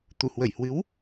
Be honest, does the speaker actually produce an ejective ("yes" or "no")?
no